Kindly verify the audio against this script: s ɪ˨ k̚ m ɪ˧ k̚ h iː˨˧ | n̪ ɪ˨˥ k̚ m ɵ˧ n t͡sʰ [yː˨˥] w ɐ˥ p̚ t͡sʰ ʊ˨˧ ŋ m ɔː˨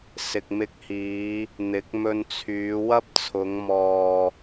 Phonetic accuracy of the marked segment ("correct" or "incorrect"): incorrect